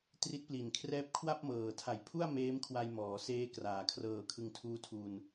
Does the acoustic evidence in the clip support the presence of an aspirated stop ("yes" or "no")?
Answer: yes